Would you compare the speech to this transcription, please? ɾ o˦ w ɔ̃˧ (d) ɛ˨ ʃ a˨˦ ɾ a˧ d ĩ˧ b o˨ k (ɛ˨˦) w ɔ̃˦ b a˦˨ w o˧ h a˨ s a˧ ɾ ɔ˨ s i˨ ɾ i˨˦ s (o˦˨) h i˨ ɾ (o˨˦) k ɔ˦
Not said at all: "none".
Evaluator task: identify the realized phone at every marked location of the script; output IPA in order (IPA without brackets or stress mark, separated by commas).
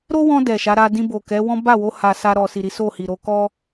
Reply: d, ɛ˨˦, o˦˨, o˨˦